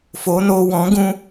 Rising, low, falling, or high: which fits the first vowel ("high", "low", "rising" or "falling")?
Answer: rising